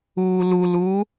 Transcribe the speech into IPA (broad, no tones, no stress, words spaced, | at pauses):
uːluluː